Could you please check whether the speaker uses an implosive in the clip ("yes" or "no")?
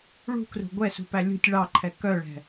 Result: no